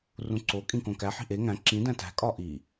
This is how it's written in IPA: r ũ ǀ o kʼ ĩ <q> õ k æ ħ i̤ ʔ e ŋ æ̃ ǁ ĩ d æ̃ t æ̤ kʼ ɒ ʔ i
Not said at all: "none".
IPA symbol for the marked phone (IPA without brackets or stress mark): k